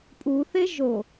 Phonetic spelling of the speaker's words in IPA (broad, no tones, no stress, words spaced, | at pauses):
pʼuθe ʒo